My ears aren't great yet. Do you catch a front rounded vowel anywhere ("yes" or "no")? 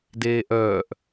yes